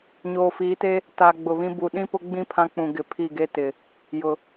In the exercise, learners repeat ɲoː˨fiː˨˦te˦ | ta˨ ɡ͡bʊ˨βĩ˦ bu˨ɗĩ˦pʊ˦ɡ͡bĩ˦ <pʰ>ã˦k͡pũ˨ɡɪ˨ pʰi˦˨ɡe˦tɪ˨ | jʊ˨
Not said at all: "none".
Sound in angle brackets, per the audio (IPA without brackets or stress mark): pʰ